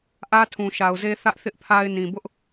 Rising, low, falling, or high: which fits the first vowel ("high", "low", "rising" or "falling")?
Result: high